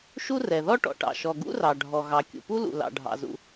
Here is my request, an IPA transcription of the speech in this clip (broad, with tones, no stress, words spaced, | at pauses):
ʃu˥rɛ˩ ðɔ˥ʈɔ̰˩ʈɑ̰˩ ʃɔ˩ɡṵ˥rɑ˩ɖʱɔ˩ ɣɑ˩kʲṵ˩pu˥lṵ˩ lɑ̰˩ɖʱɑ̰˩zṵ˩